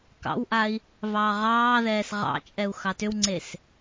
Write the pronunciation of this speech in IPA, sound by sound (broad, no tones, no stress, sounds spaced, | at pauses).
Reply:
k ɑ̰ w ʔ a i̯ | v ɑː ʁ ɑː ð ɛː s ʁ ɑ̰ t͡ʃʼ ɛ u̯ x ɑ t ʏ w ŋ͡ǀ e s